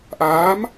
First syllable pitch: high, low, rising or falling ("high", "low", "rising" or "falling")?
rising